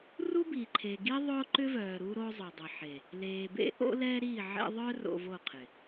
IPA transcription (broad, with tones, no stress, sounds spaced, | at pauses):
r u˦ b i˨ ǃʰ e˨ ɡ i˦ ðˤ ʊː˦ ǃ ʏ˦ v œː˨ ɾ u˦ ɾ o˦ zˤ ʊ˨ dˤ ə˨ ħ e˨ | l eː˨ b ḛ˦ ʔ o̰˦ l ɛ˦ ɾ i˦˨ ʕ ḛ˦ ðˤ œ˦ r o̰˨ v o˦˨ qʰ ɪ˨